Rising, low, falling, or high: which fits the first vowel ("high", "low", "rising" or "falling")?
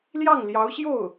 falling